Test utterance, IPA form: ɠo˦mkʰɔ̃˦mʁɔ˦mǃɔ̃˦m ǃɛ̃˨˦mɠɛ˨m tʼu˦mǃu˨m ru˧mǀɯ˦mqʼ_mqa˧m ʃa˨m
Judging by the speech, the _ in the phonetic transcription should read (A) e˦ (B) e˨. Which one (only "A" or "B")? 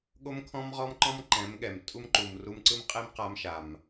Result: A